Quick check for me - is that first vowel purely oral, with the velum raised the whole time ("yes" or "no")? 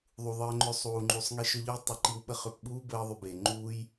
yes